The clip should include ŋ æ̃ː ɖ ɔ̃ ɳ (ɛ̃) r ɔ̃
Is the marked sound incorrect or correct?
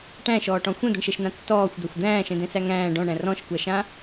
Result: incorrect: æ̃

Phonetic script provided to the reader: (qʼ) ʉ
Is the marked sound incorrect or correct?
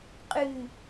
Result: correct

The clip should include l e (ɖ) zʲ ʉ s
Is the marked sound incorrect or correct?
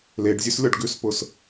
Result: correct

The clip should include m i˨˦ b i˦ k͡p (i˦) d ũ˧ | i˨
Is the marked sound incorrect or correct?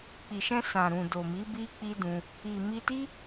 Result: correct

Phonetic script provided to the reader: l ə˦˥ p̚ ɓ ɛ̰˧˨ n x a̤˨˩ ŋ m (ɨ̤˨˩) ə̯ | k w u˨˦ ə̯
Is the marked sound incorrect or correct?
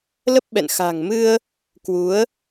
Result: incorrect: ɨ˧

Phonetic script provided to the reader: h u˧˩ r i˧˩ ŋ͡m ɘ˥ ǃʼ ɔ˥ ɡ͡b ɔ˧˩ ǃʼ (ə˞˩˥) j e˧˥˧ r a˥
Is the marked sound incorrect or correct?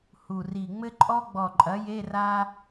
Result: incorrect: ɐ˩˥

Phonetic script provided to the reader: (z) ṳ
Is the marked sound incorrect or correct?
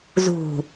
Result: correct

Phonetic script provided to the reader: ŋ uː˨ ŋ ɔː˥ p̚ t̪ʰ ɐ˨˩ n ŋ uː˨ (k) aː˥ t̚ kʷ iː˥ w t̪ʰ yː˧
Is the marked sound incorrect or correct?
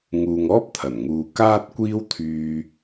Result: correct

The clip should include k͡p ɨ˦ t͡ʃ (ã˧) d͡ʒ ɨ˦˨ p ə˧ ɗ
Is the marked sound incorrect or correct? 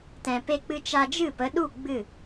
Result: incorrect: a˧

